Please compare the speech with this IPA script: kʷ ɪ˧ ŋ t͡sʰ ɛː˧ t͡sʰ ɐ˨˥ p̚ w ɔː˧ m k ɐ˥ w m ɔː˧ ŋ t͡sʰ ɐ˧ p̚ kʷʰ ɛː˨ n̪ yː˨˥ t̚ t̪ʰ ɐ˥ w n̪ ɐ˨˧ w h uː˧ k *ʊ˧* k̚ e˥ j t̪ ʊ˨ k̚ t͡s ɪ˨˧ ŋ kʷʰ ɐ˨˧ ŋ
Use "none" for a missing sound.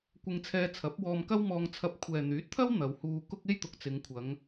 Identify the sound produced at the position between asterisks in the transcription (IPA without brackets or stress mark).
ʊ˥